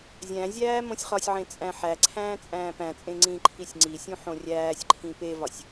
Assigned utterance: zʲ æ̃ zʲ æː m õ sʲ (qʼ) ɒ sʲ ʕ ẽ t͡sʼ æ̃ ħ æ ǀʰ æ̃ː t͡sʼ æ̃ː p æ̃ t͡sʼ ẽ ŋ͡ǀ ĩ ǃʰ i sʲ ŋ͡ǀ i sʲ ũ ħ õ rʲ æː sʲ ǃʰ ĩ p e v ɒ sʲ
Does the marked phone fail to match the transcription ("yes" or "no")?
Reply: yes